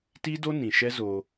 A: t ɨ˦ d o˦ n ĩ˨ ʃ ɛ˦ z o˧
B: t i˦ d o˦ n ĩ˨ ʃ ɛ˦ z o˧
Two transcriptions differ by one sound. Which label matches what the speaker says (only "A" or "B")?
B